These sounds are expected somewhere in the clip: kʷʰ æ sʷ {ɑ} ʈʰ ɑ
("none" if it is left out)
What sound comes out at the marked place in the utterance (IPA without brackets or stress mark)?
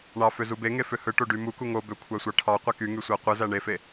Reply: ɑ